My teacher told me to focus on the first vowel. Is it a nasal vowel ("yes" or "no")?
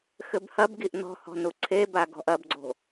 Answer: no